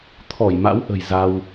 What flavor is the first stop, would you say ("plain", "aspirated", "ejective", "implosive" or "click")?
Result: aspirated